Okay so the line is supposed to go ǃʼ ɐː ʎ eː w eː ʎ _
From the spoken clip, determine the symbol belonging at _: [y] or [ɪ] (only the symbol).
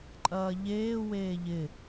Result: ɪ